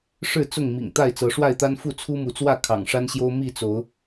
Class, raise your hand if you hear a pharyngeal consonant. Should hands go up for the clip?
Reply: no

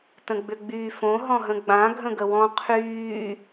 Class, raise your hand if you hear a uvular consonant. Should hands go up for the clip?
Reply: yes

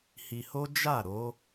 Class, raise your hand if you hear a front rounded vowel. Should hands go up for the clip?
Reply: no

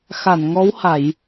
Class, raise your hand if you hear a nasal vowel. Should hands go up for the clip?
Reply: no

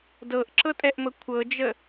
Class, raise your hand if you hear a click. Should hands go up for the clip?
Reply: yes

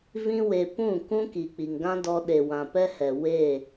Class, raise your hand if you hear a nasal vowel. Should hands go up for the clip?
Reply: yes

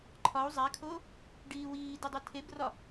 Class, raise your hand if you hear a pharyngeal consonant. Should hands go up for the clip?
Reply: no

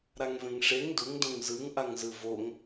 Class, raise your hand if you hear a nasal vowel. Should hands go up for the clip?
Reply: yes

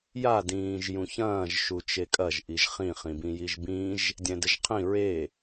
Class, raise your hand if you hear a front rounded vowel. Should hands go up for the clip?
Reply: no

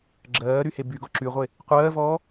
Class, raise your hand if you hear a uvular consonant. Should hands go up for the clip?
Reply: yes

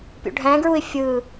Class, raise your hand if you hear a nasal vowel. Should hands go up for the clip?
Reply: yes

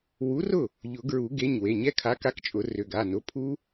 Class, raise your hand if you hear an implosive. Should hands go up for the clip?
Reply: no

